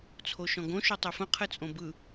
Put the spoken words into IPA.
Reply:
t͡sʰ o ʃ ɔ̃ ɡ õ ʃ o tˤ e f ə̃ qʰ ɘ t͡sʼ õ b ɯ

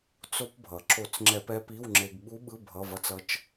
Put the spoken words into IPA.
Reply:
t͡s o˧ p bʱ ʌ˩ ǁ o˧˩˧ t͡s ŋ͡ǁ ɛ˧˩˧ p ɛ˦˥ p i˧˥˧ w ŋ͡ǁ e˧ ɡ ɓ u˦˥ ɓ ɯ˧˥˧ bʱ ʌ˧˥˧ v ʌ˦˥ t͡s ʌ˦˥ t͡ʃ

